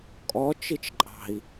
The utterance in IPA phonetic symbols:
kʼ ɔ t͡ʃ i t͡ʃ ǃʼ ɑ̤ i̯

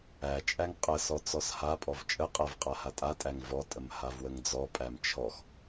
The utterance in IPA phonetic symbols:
æ t͡ʃʼ æ ŋ qʼ ə s ɔ t͡s ɔ s h a pʼ ɔ v t͡ʃʼ ə qʼ æ v qʼ a h a tʼ a tʼ æ ŋ v ɔ tʼ ə m h a v w ə ŋ d͡z ɔ pʼ æ m t͡ʃʰ ɔ x

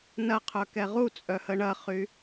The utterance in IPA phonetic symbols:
n ɐ qʰ œ k ɛ ʁ u t͡sʼ œ h ə ɳ ɐ χ y

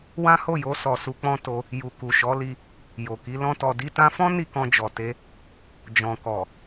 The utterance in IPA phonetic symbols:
w ã˦ h o˦˨ j o˧ s ɔ˨ s u˧ k͡p ɔ̃˦ t o˧ | j u˨ k u˨ ʃ ɔ˨˦ l i˧ | j o˨ k i˨˦ l ɔ̃˦ t ɔ˧ d i˧ t ã˧ f ɔ̃˦ n i˦˨ k ɔ̃˧ d͡ʒ ɔ˨ t e˧ | d͡ʒ ɔ̃˨ k ɔ˨

